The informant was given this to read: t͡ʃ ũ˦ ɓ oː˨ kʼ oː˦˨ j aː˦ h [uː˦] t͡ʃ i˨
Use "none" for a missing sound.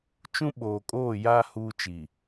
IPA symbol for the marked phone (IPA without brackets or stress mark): uː˦